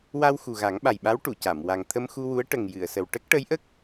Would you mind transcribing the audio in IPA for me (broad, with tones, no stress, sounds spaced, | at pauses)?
w a˧ w x u˨˩ ɣ a˨˩˦ ŋ ɓ a˨˩ j ɓ a˧˥ w ʈ u˨˩˨ c a˨˩˨ m w a˨˩ ŋ t̪ʰ ə˧ m x u˧ w u˧˥ ə̯ ʈ ə˨˩ ŋ j ɨ˨˩˨ ə̯ s ə˨˩ w ʈ ə˦˥ k̚ ʈ ə˧˥ j ʔ ə˦˥ k̚